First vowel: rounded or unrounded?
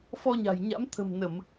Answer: rounded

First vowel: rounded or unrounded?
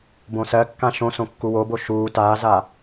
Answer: rounded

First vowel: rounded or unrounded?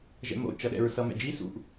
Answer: unrounded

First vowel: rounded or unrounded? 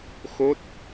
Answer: rounded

